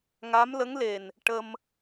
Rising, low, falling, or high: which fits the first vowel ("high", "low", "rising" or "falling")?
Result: rising